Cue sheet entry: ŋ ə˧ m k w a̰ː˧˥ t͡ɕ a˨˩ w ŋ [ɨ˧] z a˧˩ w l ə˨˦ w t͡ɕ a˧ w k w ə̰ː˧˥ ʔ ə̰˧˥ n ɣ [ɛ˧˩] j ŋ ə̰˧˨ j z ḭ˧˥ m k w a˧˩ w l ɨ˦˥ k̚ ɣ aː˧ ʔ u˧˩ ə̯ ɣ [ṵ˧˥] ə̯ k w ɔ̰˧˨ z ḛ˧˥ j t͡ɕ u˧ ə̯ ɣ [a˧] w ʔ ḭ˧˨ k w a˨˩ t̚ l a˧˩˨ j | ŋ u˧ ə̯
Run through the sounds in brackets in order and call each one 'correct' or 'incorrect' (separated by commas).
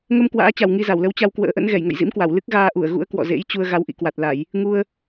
incorrect, correct, correct, incorrect